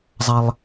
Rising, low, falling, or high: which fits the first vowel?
low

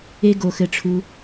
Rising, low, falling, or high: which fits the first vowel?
high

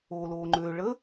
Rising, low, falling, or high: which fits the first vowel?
low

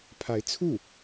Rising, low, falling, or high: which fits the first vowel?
rising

